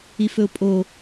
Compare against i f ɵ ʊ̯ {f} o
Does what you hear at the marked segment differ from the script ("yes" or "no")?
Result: yes